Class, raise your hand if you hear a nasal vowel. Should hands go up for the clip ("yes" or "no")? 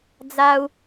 no